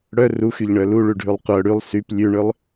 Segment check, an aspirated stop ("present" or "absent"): absent